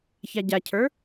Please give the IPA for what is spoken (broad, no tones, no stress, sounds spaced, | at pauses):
ç a ɟ a cʰ ə˞